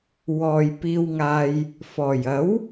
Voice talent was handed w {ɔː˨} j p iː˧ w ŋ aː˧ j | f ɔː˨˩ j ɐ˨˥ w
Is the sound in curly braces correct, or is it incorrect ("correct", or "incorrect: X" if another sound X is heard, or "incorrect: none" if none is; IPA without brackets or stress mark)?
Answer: correct